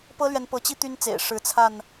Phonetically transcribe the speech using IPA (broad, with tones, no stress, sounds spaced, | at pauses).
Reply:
p ɤ˦ l ɥ ɛ˨ n p ɤ˨˦ t͡ɕ i˦ t̪ y˦ n t͡s ḛ˨˩ ɪ̯ ʂ ɻ̩˨˦ t͡sʰ a˥˨ n